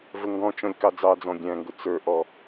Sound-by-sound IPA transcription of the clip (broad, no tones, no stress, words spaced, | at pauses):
vəŋɡɔ̃t͡ʃɔ̃lʲ kɑd͡zɑd͡zɔ̃ ɡʲæ̃ŋɡʊ t͡sə˞ʔɔ